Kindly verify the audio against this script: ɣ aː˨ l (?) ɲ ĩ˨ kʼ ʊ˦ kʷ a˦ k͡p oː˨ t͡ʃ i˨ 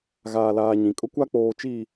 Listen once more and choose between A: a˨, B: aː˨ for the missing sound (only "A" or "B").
B